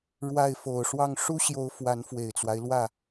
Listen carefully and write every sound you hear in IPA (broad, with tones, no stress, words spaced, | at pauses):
ɻwa˥˩ɪ̯ fo˨˩ʊ̯ʂwɑ˥˩ŋ ʂu˥ɕjo˧˥ʊ̯ fwa˧˥nfwe˨˩ɪ̯t͡swa˦ɪ̯ lwä˥˩